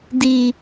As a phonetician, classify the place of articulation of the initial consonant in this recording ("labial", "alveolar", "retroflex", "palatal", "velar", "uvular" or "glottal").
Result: alveolar